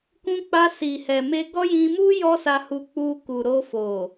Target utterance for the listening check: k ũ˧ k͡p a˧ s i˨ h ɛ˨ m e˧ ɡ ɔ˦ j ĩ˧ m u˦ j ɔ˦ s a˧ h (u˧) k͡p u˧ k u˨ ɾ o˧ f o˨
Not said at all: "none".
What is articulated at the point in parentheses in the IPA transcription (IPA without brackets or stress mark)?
u˧